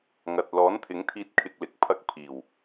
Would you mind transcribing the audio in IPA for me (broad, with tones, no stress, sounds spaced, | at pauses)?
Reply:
ŋ ɐ˨ t̚ l ɔː˨˥ n t̪ʰ ɪ˨˥ ŋ t̪ʰ iː˧ t̚ kʰ ɪ˧ k̚ l ɪ˨˥ k̚ pʰ ɐ˧ k̚ pʰ iː˨˩ w